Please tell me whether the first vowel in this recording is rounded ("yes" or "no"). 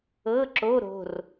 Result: no